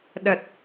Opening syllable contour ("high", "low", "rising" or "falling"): low